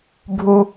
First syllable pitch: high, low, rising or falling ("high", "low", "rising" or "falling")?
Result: low